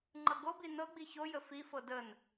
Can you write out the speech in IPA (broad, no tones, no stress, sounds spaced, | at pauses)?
ŋ͡ǃ ɤ ɡ o b i n ɤ ɡ͡b i ç o j ə f i f ɤ d ə n